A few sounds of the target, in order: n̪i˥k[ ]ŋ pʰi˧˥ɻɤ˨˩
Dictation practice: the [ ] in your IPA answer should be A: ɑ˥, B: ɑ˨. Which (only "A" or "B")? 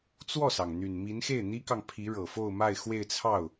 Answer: B